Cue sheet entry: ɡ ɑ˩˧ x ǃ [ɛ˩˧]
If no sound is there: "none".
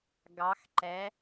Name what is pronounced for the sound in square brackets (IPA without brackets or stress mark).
ɛ˩˧